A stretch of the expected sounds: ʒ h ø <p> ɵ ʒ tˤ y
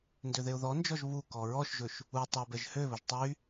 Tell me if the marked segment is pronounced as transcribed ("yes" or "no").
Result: no